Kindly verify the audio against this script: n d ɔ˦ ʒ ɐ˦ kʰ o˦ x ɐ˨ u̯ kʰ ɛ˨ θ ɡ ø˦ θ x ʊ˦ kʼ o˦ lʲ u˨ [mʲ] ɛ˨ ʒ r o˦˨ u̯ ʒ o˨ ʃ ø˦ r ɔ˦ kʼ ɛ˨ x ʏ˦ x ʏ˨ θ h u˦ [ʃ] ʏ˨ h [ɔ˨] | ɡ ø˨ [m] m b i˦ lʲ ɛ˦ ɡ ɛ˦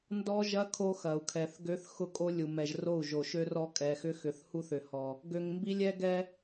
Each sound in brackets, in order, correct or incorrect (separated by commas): incorrect, incorrect, correct, incorrect